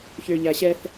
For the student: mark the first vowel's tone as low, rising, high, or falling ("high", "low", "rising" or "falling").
low